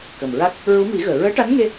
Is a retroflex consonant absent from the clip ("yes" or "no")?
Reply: no